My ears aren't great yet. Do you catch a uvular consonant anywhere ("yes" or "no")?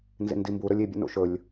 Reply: no